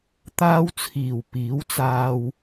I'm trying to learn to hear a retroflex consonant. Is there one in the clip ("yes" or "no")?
no